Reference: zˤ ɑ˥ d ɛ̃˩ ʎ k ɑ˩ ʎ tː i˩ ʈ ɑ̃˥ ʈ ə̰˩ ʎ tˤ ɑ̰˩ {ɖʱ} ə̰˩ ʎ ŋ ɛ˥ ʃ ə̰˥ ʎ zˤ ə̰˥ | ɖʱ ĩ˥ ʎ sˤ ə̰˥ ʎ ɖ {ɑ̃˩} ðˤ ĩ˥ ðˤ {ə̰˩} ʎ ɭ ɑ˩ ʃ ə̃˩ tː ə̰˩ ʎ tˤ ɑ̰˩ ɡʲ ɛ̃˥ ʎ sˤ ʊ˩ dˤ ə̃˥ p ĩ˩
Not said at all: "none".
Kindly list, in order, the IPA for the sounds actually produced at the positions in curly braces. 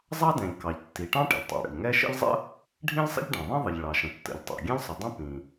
ɽ, ɑ̃˩, ə˩

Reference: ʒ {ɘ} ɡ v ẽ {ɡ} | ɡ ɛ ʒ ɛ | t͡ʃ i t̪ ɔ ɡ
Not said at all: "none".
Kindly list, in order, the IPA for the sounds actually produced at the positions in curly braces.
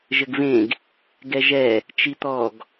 ɘ, ɡ

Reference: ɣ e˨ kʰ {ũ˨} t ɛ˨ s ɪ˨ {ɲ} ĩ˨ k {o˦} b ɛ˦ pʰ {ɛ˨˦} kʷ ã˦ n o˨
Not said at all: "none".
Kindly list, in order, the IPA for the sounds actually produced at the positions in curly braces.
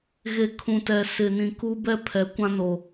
ũ˨, n, u˦, ɛ˨˦

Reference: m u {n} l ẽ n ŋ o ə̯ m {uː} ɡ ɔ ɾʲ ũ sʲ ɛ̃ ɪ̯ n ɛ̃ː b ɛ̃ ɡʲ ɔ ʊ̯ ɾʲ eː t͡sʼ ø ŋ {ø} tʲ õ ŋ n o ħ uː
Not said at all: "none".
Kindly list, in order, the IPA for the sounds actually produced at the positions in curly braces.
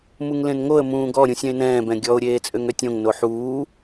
ŋ, ũː, ø

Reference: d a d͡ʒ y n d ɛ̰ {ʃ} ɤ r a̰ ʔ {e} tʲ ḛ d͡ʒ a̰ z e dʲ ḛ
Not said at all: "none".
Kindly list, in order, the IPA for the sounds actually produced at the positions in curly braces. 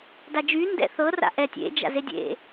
θ, ɛ

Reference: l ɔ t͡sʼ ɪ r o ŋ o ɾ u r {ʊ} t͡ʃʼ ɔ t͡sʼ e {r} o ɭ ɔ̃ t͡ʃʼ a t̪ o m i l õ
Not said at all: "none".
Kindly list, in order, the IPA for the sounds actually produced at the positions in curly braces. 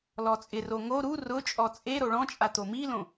ʊ, ɾ

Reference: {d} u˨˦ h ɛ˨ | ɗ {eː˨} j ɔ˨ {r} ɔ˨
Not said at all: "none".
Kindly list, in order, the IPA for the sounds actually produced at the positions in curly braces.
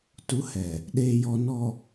t, eː˨, n

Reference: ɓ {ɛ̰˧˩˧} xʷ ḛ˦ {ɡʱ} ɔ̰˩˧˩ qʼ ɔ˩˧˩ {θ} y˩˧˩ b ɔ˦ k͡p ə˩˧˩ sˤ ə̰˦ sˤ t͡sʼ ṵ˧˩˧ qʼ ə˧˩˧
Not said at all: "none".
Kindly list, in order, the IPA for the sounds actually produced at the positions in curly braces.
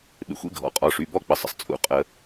ḛ˧˩˧, ɡʱ, ʂ

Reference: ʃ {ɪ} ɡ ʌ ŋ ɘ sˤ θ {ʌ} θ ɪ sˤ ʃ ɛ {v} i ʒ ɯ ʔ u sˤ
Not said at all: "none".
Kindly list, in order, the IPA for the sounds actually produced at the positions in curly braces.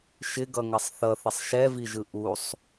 ɪ, ʌ, v

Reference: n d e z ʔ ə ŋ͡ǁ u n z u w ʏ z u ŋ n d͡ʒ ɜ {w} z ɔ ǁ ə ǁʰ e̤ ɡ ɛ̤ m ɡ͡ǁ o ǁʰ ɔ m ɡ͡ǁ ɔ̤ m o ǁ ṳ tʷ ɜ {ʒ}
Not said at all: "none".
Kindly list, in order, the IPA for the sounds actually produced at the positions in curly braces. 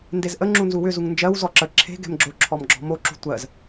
w, z

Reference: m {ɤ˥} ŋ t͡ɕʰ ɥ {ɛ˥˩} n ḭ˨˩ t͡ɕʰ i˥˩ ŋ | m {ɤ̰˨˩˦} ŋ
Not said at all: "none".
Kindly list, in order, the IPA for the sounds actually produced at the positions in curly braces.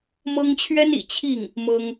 ɤ˥, ɛ˥, ɤ˥

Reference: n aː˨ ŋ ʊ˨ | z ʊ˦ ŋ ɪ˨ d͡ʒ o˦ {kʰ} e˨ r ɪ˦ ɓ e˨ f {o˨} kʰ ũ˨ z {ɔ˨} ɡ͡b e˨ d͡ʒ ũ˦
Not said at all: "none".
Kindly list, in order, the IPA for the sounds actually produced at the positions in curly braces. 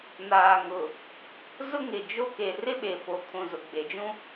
k, o˨, ʊ˨

